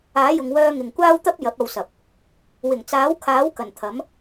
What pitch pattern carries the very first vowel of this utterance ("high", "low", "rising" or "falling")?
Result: rising